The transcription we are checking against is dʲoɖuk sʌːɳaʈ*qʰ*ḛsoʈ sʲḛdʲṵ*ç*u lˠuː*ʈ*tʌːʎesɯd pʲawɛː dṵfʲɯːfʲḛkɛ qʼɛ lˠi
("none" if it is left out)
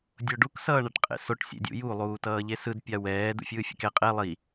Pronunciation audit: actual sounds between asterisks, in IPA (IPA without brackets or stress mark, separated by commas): qʼ, j, none